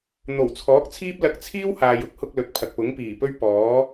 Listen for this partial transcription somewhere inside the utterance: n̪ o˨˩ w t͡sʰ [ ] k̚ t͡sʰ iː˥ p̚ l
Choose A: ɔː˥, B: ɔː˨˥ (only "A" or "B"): B